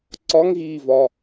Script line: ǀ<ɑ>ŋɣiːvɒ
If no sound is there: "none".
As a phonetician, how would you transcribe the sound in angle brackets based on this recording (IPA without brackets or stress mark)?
ɒ